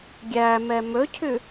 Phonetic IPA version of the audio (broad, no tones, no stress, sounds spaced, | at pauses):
ɡʲ æ m ɛ m ɵ cʰ ʉ